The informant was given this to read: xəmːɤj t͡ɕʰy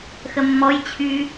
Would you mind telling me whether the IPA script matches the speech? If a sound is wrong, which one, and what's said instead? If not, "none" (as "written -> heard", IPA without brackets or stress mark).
ɤ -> ɔ